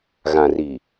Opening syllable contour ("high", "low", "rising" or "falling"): low